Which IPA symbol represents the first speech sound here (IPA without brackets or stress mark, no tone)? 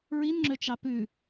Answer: ɹ